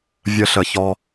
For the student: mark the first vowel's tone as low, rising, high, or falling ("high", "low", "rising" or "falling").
high